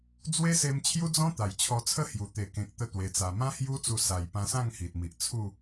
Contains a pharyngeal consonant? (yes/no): no